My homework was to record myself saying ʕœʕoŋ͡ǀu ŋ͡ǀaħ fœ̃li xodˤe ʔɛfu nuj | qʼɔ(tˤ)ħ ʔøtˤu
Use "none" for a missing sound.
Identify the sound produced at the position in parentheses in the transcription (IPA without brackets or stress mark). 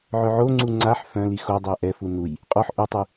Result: none